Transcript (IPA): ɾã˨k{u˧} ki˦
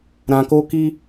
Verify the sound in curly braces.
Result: incorrect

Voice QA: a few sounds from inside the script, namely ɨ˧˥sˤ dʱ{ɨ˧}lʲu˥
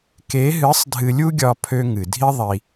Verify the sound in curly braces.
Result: correct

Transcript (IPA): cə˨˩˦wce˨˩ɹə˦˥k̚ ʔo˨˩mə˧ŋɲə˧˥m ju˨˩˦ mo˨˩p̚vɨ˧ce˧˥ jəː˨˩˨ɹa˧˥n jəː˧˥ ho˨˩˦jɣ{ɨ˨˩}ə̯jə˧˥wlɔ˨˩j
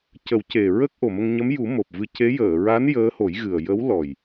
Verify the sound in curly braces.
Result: correct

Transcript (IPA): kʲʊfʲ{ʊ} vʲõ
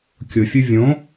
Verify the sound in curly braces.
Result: incorrect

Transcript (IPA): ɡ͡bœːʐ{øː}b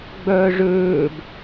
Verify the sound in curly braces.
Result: correct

